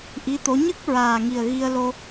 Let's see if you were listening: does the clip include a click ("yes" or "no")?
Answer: no